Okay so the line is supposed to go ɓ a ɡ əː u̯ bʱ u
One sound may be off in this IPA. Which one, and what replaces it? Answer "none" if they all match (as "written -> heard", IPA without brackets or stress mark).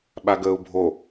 u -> o